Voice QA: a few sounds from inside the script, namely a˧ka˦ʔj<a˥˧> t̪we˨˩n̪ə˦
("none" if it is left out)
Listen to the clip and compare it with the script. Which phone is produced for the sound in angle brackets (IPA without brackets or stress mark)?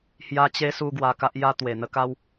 a˦